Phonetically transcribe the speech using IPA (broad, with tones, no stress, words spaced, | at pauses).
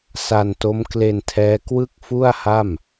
sa˧n to˦˥mkle˧ntʰɛː˦˥ kwɯ˥˩k̚fu˥˩a̯ha˥˩m